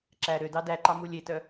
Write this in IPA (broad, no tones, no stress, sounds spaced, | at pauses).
ǁ æ ɾ ø d ɑ d æ ǃ ɑ m u lʲ e t œ